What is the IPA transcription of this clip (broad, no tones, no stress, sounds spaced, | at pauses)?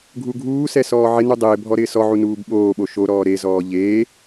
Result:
ɡʱ u ɡʱ uː s ɛ s ɔː ʕ ɪ n u dˤ ɪː bʱ ɔ ɾ ɪː s ɔ ʕ u n uː b ɓ oː ɓ o ʃ o ɾ ɔː ɾ e z ɔː ʎ eː